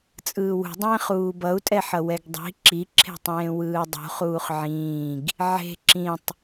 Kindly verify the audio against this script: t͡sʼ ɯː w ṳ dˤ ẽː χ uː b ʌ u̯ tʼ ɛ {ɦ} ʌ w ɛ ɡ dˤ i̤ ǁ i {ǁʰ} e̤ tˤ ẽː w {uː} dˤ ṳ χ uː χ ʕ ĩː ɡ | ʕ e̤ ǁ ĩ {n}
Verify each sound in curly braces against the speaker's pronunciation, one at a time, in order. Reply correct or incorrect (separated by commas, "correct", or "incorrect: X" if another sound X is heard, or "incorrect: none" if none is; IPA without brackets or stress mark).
incorrect: ħ, correct, incorrect: ɯː, incorrect: tˤ